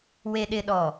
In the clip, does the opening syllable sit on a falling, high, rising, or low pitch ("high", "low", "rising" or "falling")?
low